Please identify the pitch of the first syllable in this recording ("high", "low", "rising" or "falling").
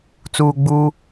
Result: low